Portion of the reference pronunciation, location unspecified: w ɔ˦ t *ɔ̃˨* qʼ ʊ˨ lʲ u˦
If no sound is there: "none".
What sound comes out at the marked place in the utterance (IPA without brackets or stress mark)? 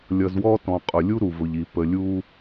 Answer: ɔ̃˨